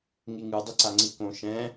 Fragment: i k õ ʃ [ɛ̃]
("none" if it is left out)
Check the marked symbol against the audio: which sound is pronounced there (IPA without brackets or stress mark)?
ɛ̃